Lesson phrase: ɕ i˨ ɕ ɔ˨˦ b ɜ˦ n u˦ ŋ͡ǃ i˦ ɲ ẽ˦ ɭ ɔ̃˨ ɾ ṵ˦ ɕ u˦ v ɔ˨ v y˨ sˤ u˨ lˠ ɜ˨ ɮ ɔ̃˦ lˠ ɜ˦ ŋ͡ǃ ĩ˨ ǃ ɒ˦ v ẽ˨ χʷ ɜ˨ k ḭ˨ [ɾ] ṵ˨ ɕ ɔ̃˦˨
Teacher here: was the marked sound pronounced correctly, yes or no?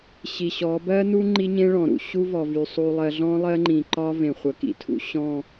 no